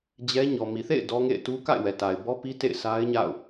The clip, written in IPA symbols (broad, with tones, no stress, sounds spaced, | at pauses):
d͡ʑ ɛ˦ ɲ ɔ˨ m i˨ θ ḛ˦˨ ɪ̯ d ɔ˦ ŋ ḛ˦˨ ɪ̯ t u˦ k a̰˦˨ ɪ̯ w ɛ˨ t a˨ ɪ̯ b ɔ˦ p i˦ t ḛ˦˨ ɪ̯ s a˦ ɪ̯ ɲ a̰˦˨ ʊ̯